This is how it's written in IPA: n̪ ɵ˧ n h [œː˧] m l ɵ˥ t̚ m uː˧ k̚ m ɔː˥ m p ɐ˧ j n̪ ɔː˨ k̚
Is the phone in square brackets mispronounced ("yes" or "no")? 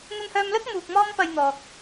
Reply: no